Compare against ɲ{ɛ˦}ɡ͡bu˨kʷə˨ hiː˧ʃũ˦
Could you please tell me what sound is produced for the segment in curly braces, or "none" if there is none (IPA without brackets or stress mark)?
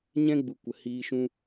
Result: ɛ̃˦